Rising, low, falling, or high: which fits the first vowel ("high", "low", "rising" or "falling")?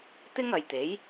high